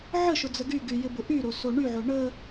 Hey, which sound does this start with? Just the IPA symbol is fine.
ʕ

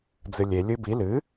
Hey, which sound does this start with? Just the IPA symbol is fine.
d͡z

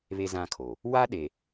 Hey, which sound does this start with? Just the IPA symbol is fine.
β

